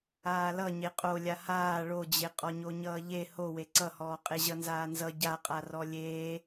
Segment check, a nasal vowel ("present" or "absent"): absent